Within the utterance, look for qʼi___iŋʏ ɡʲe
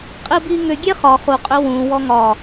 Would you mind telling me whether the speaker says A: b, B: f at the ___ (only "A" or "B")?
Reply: A